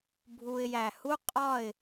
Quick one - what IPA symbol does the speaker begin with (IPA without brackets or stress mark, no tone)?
bʱ